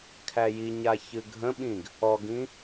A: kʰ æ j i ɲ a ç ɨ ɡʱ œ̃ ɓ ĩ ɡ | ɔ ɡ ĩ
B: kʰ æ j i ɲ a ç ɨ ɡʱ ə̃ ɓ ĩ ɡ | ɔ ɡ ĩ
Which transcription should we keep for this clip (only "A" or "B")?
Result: B